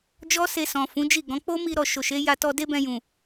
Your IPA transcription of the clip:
d͡ʒ ɔ˦ s e˧ s ɔ̃˨ f ũ˨˦ d͡ʒ i˦˨ ɡ ɔ̃˨˦ k͡p o˦ m i˧ ɾ ɔ˨ ʃ o˨ ʃ e˨˦ j a˧ t ɔ˧ d e˦ b ɛ̃˧ j ũ˨

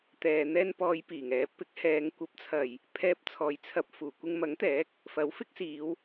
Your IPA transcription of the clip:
t̪ ɛː˨ n̪ ɛː˧ n p ɔː˨˧ j p iː˨˩ ŋ ɛː˨˥ p ɪ˨˥ k̚ h ɛː˨˧ ŋ kʷ ɐ˨ p̚ t͡sʰ ɐ˨˩ j | pʰ ɛː˧ p̚ t͡sʰ ɔː˨ j t͡sʰ ɐ˧ p̚ f uː˨˩ kʷ ɪ˧ ŋ m ɐ˨˥ ŋ t̪ ɛː˨˥ k̚ | f ɐ˨˥ w f ɪ˥ k̚ s iː˨˧ w

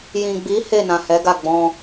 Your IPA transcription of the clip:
j ĩ˨ ɡ͡b i˨˦ h e˦˨ n ã˨ h ɛ˨˦ ɡ a˦˨ ɡ͡b ɔ̃˧

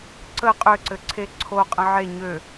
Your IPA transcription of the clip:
ǀ ə qʼ ø ǀ ɘ ǀʰ e ǀʰ o qʼ ə̃ ʕ e ɲ ø

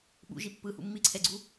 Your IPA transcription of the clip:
ɓ ṵ ʒ i pː ɯ h ṵ mː i ǀʰ ɛ ɡ͡ǀ u

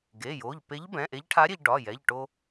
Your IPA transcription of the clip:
ɡ e˩˧˩ j o˩˧˩ ʎ p e˧˥ ʎ b ɛ̃˩˧˩ ʔ e˧˥ ʎ ʈʰ a˧˥ ɾʲ e˧ ʎ ɖ ɒ˩˧˩ j ɛ˩˧˩ ʎ ʈ o˧

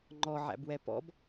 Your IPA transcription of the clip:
ŋ͡ǃ ɔ ʕ æ̰ b w ɛ p ɔ̰ b

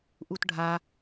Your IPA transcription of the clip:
ʔ u t ɖʱ a

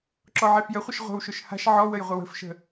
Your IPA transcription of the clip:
ǁ ɔ ʕ e f j ə χʷ ə ʃ ʁʷ ə̤ w ʃ ʊ ʃ h a̤ ʃ ʕ ɔ w ə j ʁʷ ɪ w ə̤ f ʃ ə̤

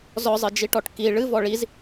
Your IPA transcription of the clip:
z ɔ zˤ ɨ d͡ʒ i ʈ ɔ ʈ k i ɭ ɨ v ɔ ɭ i z

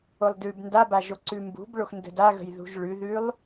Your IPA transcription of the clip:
o lˠ d ʉ b n d a b a ʒ o ǀ ʉ m b ṳ b ɭ o x n d ə̤ d a ɣ ə̤ j ð ṳ ʒ ɭ ʉ ð ʉ lˠ

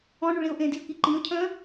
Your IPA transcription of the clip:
ɔ̃ ɳ y ɭ ĩ ʊ̯ ʔ ẽ d i ə̯ k i ǃ ĩ ʊ̯ cʰ œ̃

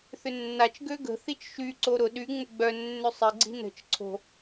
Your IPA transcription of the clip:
θ ʏ nː a t͡ʃ ɡ ø ɡ ə̤ θ i t͡ʃ ʃ y ǀ o ɾ ʊ ɗ y ŋ͡m ʊ ɡ͡b œ nː ʏ sˤ ɪ ɡ͡ǀ i̤ n ə̤ t͡ʃ ǀʰ o̤

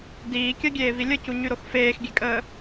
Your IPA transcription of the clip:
d iː kʲ ɜ ɡʲ eː v i lʲ ə c u ɲ y ɾ o x f eː x ɡʲ e kʼ əː

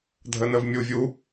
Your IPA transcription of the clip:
dʱ ə n ə v mʲ u vʲ u

